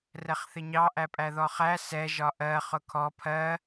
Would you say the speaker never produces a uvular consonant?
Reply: no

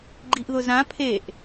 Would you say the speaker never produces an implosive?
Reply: yes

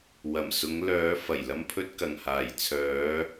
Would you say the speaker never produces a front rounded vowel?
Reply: no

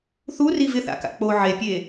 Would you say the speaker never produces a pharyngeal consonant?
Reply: no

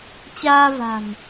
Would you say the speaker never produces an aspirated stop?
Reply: yes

